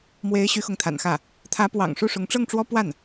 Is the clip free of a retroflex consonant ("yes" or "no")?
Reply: no